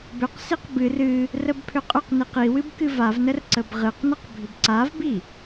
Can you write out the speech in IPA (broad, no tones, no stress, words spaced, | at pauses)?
bʏqsiq bɨr ɨ | rəbpʰʏqʼʏqniq iwɨb kɨvavnər ǀəbʁɨqnəq bʱʏbǀavbi